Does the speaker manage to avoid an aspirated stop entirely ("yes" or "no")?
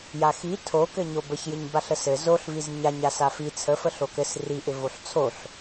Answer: no